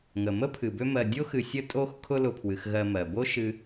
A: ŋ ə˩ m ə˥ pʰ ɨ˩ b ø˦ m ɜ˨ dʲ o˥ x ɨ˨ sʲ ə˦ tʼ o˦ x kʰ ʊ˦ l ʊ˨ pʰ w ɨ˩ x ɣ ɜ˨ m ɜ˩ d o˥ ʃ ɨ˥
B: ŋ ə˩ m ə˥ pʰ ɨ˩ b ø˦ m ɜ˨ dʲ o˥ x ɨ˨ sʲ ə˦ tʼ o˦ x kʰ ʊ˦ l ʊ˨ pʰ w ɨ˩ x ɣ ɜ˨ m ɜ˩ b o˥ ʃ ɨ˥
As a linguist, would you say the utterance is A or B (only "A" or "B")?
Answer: B